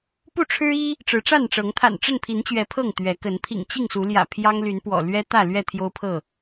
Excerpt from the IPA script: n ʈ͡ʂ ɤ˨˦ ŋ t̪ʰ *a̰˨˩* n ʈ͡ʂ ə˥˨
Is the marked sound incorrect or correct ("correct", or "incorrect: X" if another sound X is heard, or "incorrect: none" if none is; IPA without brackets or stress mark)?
correct